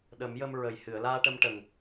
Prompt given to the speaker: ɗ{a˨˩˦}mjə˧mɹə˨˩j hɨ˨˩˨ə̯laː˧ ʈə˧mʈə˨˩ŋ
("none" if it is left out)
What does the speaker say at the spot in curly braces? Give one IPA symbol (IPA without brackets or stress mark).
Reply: ə˨˩˦